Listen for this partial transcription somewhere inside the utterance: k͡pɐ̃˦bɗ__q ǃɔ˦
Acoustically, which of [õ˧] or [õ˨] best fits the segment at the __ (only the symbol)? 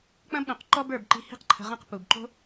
õ˨